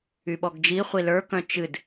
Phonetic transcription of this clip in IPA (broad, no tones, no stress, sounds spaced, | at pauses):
y ɓ ɔ ɡ d͡ʒ i χʷ i l ə˞ k œ̃ t͡ʃ ɨ d